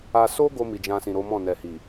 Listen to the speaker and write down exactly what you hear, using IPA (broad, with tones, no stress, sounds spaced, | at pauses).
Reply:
a˧ s o˦ ɡ o˧ m i˨ d͡ʒ ã˧ s ĩ˨ ɾ o˨˦ m ɔ̃˦˨ n ɛ˨ h i˨